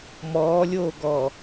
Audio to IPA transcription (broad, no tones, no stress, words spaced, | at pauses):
mɔːlʲoːɡɔ